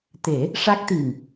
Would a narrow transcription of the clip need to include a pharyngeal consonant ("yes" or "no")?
no